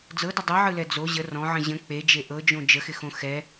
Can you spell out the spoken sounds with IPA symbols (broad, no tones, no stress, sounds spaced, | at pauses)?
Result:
d͡z ɤ d ɪ dˤ ɯ ʕ ɯ l ɛ d͡z o ʑ ə r ɔ̃ ʕ ə̃ ʑ ə̃ k͡p e d͡ʒ e ʔ ɤ d͡ʒ õ d͡ʒ ə x ɪ x õ x ɛ